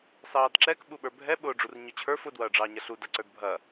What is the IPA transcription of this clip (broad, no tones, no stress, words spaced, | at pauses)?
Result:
sɑːdǁɛk ɓuɓə˞bʱɛ ɓʊːɖ͡ʐurɲʊt͡ɕʰə˞f ʊ dwɐːɖ͡ʐɑːɲɐɬu dɐǀə˞dbʱɐ